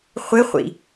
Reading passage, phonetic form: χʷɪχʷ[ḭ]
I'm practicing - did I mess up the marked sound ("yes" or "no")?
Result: no